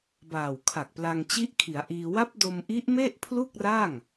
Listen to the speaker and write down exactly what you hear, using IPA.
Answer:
baː˨˩wkʰa˨˩k̚pla˧ŋ t͡ɕi˦˥ʔkʰi˩˦a̯ ʔiː˧ wa˦˥p̚do˧m ʔi˦˥ʔme˥˩ʔpʰlu˥˩k̚ra˥˩ŋ

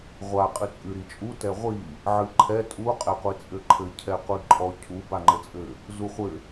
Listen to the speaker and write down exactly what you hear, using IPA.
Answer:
ʁʷa qʼɨt͡sʼɨ ɾit͡ʃʼu tɛʁʷi | ʕɨǃʰɛ tʼu qʼɛqʷit͡sʼɘǃʰɘ cʰɛqʷiǃʼɔ cʰu baŋ͡ǃɘt͡sʼɘ | zuχʷɘ

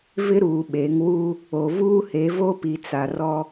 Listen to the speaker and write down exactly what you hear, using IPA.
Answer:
vɪ˦ɾuː˨ɓe˨˦ŋ wu˦ | o˨vuː˦he˨˦ vo˦pi˨t͡sa˨ rɔ˦

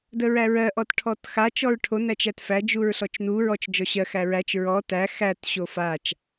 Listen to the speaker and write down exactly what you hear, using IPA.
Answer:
dəɹæɹɜ ʔɔtʈʰɔtxa t͡ʃɔɹʈʰo næt͡ʃætfæ d͡ʒuɹɬɔt͡ʃnu ɹɔt͡ʃ d͡ʒɔɕɜ xæɹæt͡ʃ ɹɔ tæ xæt ɕofat͡ʃ

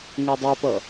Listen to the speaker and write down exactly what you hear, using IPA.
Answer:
ŋɛdˤɛpʌ

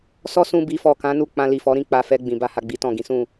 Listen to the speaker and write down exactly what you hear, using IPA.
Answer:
sɔ˦sũ˧ bi˨fɔ˨ kã˨˦nu˦˨ k͡pã˧li˨fɔ˨˦ɾĩ˦˨ k͡pa˧fɛ˧ ɡ͡bĩ˨ba˧ha˨ ɡ͡bi˨˦tɔ̃˦˨ɡĩ˨˦ sũ˦˨

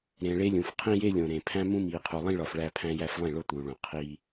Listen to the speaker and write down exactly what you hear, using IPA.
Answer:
ɾẽː˨ɭe˦lʲũ˨f qʰĩ˦je˦lʲõ˨ ɾẽ˨pʰæ̃˦ mũ˦miː˨qʰu˨ lˠĩ˦ɭɒ˨f ɭæː˦pʰæ̃˦jæ˦flˠĩ˦˨ ɭo˦t̪uː˨ɭõ˨ qʰiː˦

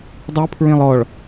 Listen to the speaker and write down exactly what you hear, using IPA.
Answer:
dˤipʰɹẽlˠ ɔɭ

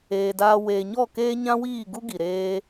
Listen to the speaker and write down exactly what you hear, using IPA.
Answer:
eː˨daː˧ weː˨ɲɔ˦˨keː˦ ɲã˦wiː˦˨ ɡu˦ɡi˨ ɾeː˦

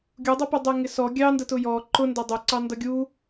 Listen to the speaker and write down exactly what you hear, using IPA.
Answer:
ɡʲudˤʌpudˤɛ ŋɪsɔ ɡʲɑndətʊ jɔ ǃʊndʌ dˤʊǀɑ ndʌɡʲu

